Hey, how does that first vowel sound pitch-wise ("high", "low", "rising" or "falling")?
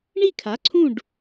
falling